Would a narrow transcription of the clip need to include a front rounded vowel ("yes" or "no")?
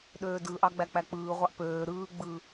yes